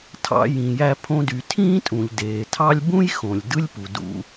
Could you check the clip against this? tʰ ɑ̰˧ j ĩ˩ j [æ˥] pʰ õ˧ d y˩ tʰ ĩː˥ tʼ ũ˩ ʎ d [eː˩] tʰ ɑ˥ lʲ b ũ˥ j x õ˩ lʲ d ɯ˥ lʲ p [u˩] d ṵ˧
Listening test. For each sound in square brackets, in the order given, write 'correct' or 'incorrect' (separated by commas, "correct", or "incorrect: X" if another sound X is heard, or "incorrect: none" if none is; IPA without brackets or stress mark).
incorrect: æ˧, correct, correct